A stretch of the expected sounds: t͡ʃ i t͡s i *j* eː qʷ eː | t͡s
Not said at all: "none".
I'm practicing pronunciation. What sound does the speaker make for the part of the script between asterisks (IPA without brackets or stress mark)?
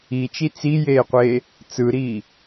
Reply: j